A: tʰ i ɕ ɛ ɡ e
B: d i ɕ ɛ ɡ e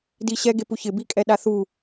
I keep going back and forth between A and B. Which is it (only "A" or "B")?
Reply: B